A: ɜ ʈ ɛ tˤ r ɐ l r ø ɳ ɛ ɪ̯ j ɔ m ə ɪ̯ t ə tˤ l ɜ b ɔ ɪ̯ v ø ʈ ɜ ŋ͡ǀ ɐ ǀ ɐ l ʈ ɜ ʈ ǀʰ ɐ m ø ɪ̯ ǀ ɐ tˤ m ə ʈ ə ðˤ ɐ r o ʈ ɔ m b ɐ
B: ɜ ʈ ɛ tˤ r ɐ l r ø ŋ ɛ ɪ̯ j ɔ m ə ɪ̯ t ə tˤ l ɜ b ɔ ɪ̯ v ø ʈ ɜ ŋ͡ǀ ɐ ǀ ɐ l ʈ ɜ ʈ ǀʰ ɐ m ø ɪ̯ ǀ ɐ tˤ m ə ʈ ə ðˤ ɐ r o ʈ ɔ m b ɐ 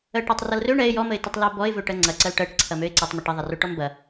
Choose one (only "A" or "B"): A